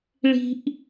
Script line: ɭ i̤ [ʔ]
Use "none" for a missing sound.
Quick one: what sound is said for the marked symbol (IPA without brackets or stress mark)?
ʔ